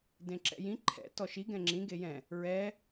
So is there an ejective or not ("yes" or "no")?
no